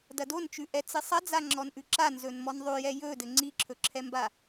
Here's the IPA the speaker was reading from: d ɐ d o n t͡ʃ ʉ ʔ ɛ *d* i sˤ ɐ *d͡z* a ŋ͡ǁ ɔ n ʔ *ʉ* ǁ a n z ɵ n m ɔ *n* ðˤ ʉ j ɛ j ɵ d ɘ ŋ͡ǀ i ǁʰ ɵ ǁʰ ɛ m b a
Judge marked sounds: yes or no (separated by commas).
no, yes, yes, yes